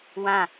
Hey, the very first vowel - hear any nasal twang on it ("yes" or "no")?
yes